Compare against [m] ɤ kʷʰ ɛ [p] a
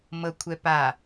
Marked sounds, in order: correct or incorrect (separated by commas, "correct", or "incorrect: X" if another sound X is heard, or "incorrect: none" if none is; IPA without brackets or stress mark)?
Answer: correct, correct